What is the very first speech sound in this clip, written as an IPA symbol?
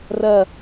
r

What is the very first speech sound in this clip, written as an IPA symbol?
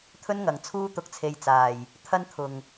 t̪ʰ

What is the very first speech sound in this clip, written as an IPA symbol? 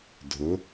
dʱ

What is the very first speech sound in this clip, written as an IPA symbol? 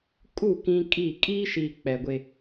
kʼ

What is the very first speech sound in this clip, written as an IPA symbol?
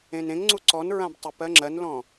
ẽ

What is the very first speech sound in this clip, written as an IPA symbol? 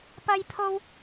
p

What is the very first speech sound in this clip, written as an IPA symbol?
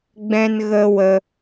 ɡ͡b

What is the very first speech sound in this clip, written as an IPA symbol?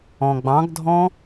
ɔ̃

